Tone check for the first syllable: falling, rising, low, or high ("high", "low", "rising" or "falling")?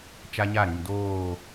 high